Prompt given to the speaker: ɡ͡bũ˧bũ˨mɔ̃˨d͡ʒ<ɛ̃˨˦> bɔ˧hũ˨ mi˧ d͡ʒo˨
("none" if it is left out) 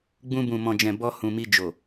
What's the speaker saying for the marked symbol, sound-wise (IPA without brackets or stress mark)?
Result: ɛ̃˨